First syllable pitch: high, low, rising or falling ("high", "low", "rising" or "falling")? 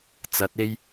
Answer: rising